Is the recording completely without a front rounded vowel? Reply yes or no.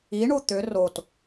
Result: no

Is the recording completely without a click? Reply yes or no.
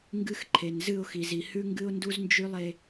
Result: no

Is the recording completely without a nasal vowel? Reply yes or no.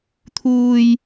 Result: yes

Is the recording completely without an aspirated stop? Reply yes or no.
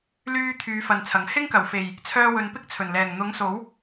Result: no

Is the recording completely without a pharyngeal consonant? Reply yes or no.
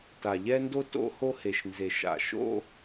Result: yes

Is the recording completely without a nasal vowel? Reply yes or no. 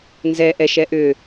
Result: yes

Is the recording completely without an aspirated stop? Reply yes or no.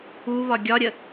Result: yes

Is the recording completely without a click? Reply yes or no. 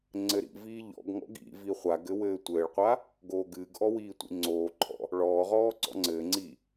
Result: no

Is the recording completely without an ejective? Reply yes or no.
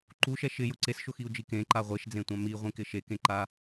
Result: yes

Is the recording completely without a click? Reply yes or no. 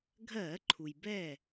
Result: no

